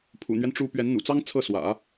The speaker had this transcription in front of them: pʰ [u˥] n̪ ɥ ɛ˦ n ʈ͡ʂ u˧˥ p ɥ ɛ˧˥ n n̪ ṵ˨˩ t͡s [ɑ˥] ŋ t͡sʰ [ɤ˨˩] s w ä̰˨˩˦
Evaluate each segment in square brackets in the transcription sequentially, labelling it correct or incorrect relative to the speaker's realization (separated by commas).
incorrect, correct, incorrect